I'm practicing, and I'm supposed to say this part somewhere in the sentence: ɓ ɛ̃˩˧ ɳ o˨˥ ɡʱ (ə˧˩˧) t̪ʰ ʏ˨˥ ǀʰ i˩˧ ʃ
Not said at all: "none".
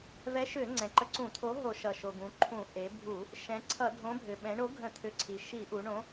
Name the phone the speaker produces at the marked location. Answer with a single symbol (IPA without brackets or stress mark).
ə̃˧˩˧